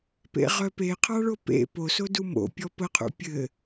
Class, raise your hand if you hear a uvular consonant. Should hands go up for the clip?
yes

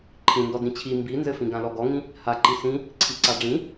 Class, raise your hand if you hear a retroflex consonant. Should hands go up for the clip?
yes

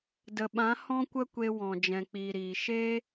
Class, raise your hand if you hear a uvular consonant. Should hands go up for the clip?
no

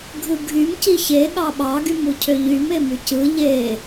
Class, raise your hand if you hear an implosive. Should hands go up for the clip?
yes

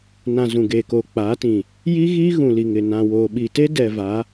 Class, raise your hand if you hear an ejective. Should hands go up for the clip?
no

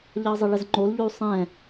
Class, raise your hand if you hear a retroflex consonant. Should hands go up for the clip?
yes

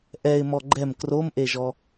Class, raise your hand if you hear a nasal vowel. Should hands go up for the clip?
no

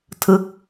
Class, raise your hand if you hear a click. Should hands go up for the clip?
no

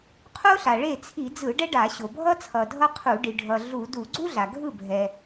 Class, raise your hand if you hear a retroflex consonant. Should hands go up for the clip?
yes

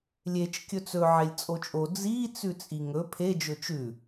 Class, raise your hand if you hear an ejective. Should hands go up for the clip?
yes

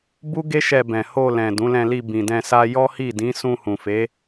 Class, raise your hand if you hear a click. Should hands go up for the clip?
no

